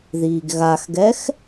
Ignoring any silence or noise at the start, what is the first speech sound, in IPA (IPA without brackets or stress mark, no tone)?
ð